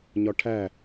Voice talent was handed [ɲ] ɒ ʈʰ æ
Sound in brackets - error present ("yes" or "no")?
no